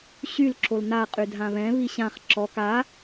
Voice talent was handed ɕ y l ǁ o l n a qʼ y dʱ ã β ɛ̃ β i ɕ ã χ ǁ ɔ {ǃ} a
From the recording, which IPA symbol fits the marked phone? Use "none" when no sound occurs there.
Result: k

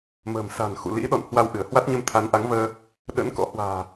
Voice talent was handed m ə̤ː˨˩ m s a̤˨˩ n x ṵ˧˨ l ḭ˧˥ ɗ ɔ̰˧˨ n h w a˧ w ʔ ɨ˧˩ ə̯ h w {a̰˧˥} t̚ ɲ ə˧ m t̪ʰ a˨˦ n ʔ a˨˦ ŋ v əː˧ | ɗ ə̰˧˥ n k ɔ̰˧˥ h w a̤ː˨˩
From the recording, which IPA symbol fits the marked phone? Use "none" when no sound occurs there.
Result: a˦˥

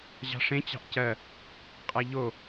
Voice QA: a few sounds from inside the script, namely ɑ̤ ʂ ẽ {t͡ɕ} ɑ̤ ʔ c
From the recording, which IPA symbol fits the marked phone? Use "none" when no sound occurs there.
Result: t͡ɕ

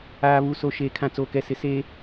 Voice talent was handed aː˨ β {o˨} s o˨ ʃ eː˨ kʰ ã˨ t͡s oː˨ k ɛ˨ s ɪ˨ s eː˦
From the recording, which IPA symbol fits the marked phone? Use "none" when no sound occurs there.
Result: u˨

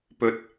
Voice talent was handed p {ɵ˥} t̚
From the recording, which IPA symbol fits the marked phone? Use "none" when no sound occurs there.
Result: ɵ˥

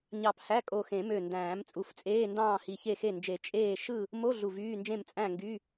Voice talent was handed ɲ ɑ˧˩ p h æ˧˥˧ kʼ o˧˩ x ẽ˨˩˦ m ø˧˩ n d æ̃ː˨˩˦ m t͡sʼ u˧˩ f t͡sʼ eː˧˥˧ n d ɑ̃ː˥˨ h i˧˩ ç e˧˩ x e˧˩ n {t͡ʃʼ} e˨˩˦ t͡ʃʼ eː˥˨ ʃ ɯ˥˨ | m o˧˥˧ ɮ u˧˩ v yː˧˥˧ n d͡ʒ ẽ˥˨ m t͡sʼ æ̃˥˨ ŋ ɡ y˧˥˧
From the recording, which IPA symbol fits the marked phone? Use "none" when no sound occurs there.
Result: d͡ʒ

